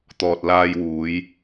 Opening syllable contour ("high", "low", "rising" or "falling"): low